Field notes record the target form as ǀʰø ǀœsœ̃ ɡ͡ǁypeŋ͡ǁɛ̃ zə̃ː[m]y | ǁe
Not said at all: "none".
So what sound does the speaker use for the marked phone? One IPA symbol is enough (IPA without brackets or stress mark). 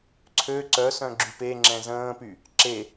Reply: p